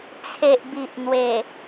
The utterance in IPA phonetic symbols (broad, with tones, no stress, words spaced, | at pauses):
t͡sʰe˨ʔbi˨ʔn̪we˨˩